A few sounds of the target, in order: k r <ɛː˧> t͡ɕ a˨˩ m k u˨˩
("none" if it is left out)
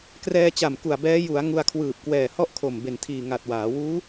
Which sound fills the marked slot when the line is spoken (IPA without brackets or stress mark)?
ɛː˧